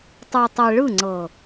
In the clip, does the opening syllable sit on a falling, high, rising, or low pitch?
low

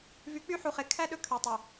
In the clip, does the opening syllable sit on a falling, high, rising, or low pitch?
rising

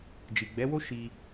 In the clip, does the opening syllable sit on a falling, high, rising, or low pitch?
low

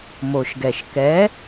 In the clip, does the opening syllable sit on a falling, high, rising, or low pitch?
low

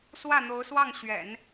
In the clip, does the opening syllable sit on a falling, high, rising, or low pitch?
falling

